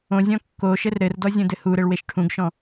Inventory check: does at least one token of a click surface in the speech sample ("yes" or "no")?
no